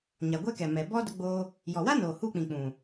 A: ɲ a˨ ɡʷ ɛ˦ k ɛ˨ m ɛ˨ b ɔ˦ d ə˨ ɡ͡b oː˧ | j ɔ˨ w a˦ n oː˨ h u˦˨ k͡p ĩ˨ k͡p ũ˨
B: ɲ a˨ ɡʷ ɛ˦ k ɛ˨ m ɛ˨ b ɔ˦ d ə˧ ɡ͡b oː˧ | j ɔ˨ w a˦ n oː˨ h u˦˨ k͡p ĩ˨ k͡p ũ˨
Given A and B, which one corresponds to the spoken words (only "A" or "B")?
B